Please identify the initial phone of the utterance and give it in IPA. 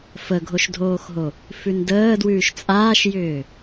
f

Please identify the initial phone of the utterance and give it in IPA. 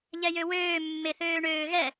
ʎ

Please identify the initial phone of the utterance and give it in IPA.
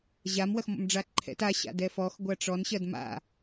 ʑ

